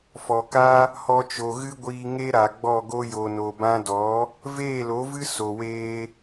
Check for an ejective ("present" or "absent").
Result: absent